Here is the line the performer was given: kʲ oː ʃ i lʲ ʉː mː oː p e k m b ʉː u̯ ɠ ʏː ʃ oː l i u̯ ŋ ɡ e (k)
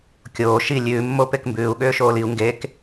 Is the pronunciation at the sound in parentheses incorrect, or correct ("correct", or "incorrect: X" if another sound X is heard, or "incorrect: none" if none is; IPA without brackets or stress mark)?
correct